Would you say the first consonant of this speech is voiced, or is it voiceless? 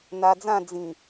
voiced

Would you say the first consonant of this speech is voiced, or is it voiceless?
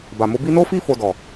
voiced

